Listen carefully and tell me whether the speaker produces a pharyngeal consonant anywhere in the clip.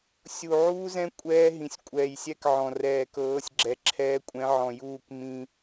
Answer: yes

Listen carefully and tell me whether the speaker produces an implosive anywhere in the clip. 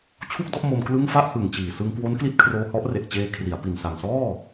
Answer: no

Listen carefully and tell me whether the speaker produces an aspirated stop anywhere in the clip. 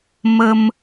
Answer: no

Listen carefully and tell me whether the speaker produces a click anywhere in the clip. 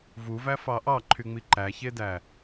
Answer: yes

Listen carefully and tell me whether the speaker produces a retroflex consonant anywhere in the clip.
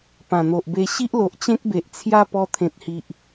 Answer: no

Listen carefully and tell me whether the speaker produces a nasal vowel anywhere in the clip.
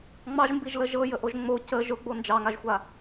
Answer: no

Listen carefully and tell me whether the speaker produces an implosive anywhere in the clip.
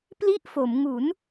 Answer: no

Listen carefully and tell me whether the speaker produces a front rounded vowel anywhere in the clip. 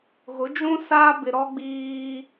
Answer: no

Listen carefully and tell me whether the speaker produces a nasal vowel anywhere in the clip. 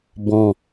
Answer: yes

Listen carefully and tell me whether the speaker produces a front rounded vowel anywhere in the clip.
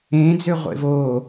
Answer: yes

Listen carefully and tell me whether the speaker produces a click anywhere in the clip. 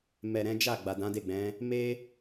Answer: no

